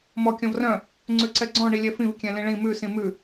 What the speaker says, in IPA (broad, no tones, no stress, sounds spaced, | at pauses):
m ɔ kʲ ɔ̃ v r œ̃ | ŋ͡ǀ ʉ ǀ ɛ ɡ͡ǀ ɔ̃ ɳ i lʲ ɛ f ĩ v kʲ ɛ̃ l ĩ ɭ ĩ m ʉ s ĩ m ʉ